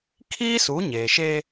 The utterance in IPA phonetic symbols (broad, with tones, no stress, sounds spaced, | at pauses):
kʰ iː˦ s u˨˦ ɲ eː˨ ʃ eː˦